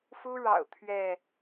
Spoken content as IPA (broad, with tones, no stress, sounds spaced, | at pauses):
f u˦ ɻ ɑ̰˨˩ ʊ̯ t̪ʰ ɥ ɛ˥˨